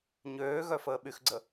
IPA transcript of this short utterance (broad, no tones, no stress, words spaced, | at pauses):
ɲøːɣœfəː ɓyxɡ͡ǀə